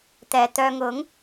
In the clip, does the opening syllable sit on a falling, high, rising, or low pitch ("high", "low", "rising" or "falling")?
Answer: low